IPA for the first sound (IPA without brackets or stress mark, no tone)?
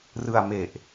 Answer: r